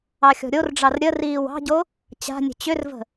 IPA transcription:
ɑ xʲ ɔ̤ ɾʲ o r ɖ͡ʐ ɑ r ɾʲ ə r iː w ɑ̤ ɟ o | t͡ɕ a̤ nʲ ə̤ t͡ɕ ʏ r v ə̤

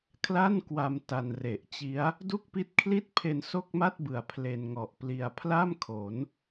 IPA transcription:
kʰ l a˥˩ n k w a˧ m t a˧ n r e˨˩ ʔ t͡ɕ i˦˥ a̯ | d u˥˩ k̚ p i˦˥ t̚ kʰ l i˥˩ t̚ pʰ e˧ n s o˥˩ k̚ m a˥˩ t̚ b ɯ˨˩ a̯ pʰ l e˧ n ŋ ɔ˨˩ ʔ p l i˧ a̯ pʰ l a˥˩ m kʰ o˩˦ n

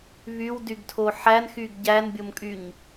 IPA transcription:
β y w d y ɡ tʰ o ħ æ n x y ɡ ɟ æ n bʲ o m kʼ y ɲ

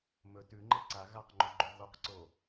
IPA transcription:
m ɵ t ʉ ŋ͡ǃ e ǀ a ɣ a q ŋ͡ǃ u ɡ͡ǃ o ɣ o q ǀ o

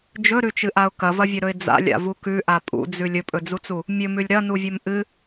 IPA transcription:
d͡ʒ ɵ ɾ ʉ t͡ʃ ɨ ʔ a ʊ̯ k ɐ v ɐ vʲ ɵ ɾ ɵ ɪ̯ d͡z a̰ lʲ a̰ v u k ʉ ʔ a pʼ ṵ d͡z ʉ lʲ ɵ pʼ ɵ d͡z u t͡s u | mʲ ɵ m ʉ lʲ ɾ ɐ n u vʲ ɵ m ʔ ɨ

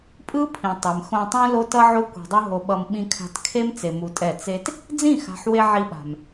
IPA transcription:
pʼ ɯ˦ pʰ ĩ˨ tˤ e˨ m x õ˧ tˤ ũ˦ l o˦ t ʌ˦ ʕ o˦ kʷ e̤˧ dˤ u˦ ɦ o˧ ɓ ʌ˧ m ɓ ĩ˧ kʰ a̤˧ t kʰ e˦ m t͡s e˧ m u˧ tʼ ɛ˦˨ t͡s e˦ t | d͡z ĩ˦˨ x a̤˨ ħ w e˧ ʕ i˧ ɓ a̤˨ m

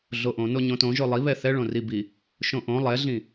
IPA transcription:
ɮ o ʔ õ n o ɲ õ t õ ʒ o lˠ i β ɛ θ ɛ ɭ õ r i b i | ʃ õ ʔ õ lˠ ɛ ɮ ĩ

